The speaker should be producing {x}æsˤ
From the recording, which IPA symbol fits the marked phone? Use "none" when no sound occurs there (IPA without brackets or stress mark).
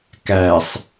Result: k